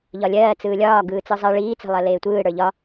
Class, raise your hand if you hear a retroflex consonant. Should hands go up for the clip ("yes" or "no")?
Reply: yes